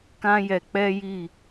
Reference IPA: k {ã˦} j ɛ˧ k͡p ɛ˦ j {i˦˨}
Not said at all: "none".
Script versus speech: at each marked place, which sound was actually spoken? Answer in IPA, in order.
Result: ã˦, i˦˨

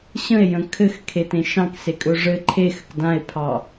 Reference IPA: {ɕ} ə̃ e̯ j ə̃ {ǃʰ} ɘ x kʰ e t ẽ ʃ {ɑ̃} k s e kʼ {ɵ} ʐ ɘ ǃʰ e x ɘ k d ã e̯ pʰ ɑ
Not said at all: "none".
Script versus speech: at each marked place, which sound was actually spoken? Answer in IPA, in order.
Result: ɕ, kʰ, ɑ̃, ɵ

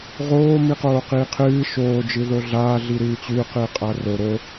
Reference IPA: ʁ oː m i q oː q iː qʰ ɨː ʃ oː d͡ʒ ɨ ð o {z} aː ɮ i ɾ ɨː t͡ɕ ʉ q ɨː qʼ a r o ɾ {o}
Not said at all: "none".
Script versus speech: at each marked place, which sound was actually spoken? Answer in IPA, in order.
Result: ɮ, o

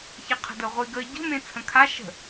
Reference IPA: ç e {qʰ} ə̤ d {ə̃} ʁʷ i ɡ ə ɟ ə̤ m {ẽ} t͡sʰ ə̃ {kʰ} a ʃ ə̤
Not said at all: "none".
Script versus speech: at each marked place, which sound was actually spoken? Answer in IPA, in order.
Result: qʰ, ə, ẽ, kʰ

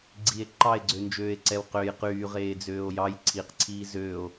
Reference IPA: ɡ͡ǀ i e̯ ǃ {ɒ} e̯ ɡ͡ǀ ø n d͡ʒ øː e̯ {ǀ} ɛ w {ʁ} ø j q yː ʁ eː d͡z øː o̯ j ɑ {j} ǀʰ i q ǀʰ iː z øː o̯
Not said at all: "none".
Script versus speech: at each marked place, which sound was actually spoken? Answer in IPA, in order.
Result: ɑ, ǀ, q, j

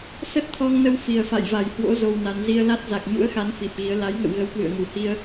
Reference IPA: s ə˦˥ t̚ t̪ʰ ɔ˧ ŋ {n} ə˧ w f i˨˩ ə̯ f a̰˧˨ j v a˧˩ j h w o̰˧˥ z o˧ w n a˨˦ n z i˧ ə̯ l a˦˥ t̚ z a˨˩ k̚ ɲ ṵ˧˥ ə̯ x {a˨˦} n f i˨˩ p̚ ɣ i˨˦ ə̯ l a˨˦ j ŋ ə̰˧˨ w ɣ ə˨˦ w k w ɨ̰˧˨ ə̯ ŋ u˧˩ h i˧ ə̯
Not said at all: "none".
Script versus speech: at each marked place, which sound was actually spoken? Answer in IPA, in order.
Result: n, a˨˦

